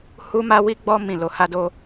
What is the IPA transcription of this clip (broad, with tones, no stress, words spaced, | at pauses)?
hu˦ma˦wi˦ ɡ͡bɔ˦ mĩ˦˨lo˧ ha˧do˧